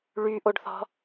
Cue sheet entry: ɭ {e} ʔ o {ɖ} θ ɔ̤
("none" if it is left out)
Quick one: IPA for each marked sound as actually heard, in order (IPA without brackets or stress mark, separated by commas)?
y, ɖ